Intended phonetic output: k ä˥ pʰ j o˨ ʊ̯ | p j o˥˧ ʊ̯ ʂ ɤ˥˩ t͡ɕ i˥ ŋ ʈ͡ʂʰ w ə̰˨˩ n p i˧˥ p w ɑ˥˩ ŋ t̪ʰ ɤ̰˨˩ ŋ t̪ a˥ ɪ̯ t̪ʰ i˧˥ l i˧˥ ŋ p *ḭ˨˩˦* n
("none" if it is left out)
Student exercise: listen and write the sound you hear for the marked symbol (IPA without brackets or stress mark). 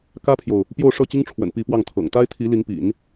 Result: ḭ˨˩˦